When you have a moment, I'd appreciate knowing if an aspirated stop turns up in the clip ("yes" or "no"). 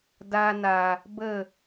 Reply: no